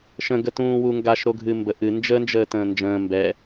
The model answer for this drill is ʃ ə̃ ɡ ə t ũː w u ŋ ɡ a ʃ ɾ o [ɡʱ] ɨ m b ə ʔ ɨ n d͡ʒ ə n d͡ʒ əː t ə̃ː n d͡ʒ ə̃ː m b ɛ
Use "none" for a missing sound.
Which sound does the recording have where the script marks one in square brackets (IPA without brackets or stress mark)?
ɡʱ